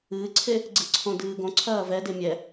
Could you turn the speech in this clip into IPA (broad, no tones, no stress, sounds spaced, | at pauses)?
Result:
ɨː ǀʰ e | ɡ͡ǀ ɨ ǀʰ õ d ɨː ɡ õ ǀʰ ɐː v ɛ d e mʲ ɛ